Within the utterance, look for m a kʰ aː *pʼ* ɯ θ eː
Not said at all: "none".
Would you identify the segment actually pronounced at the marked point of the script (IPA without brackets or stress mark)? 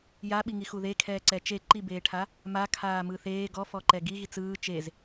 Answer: m